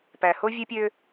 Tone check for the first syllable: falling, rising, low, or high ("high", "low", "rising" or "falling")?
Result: low